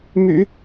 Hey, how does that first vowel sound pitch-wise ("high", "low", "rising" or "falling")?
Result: low